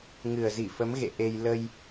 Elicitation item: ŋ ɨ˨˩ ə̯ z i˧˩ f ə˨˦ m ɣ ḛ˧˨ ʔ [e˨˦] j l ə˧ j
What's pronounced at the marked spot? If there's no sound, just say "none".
e˧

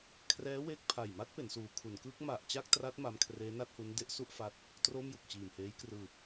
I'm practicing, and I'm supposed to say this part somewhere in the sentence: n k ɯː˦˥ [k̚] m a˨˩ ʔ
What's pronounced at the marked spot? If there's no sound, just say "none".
k̚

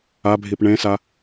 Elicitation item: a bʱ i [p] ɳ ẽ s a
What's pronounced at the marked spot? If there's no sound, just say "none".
p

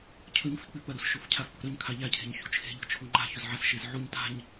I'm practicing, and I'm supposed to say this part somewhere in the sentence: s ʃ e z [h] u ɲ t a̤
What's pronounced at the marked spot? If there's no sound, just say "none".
ʕ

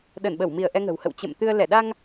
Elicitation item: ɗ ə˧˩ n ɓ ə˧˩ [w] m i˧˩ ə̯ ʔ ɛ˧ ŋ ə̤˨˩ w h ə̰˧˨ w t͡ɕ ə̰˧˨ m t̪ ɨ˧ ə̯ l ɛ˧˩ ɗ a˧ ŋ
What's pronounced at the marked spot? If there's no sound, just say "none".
w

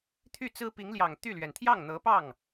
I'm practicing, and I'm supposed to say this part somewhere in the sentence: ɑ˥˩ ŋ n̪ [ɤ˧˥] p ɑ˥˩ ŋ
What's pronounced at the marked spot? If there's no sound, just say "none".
ɤ˧˥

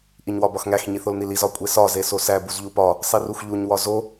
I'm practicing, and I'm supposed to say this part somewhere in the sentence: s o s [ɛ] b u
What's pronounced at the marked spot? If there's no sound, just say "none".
æ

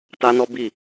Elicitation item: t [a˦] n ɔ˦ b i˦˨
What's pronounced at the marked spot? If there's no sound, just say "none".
a˦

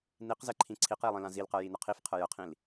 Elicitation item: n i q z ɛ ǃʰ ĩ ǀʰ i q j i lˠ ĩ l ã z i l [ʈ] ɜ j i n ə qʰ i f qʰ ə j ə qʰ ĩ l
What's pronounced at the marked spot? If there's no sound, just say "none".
q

